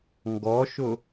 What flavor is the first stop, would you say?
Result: plain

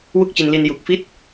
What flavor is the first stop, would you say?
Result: plain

